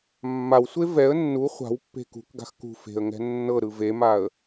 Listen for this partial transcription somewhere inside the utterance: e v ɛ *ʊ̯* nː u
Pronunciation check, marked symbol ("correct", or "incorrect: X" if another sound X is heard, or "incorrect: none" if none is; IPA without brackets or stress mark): incorrect: ə̯